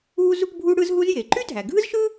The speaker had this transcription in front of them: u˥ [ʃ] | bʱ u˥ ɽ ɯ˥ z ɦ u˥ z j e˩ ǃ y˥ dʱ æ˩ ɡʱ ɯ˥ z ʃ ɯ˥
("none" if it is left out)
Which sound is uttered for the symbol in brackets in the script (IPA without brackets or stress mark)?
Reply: z